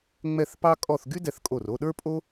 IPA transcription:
ŋ͡mɛ˥˧θpɑ˥kʼɔ˥˧θ ɡy˥dɛ˧θkʼo˧˩ro˥˧ ɗə˞˥pʼo˥

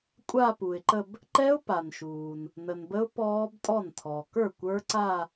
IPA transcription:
kʷʼa˥˧pu˩ɪ̯ǃə˥˧b | ǃɛ˦˥ʊ̯pa˩nʃuː˩n | nə˩nbə˦˥ʊ̯ pɔː˦˥btʼɔ˥˩ntʰɔ˩ kə˞˥˩kʷə˞˦˥ǀa˥˧

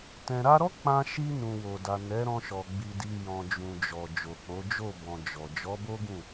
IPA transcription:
tɛ̃˨ɾa˧ɾɔ˦ k͡pã˧ʃi˧ nũ˨wo˨da˨ nɛ˨˦ɾɔ̃˧ʃɔ˨ ɡ͡bi˨di˨ jɔ̃˨d͡ʒũ˨d͡ʒɔ˨ d͡ʒo˨k͡po˨˦ d͡ʒo˦˨bɔ̃˨ d͡ʒɔ˨ d͡ʒɔ˨˦bo˦ɡũ˦˨

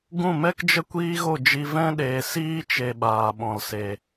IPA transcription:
ɡũ˦˨mɛ˦kd͡ʒə˦ kʷiː˦ɣo˦˨d͡ʒi˧ vɛ̃˦ ɗeː˨siː˦t͡ʃe˨ ɓaː˨ɓɔ̃˨lse˨

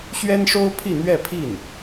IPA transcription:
ɕɥɛ˥nʂo˥ʊ̯ pʰi˥˧n̪ɥɛ˥˧pʰi˥˩n

